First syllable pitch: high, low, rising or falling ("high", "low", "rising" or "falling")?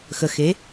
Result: low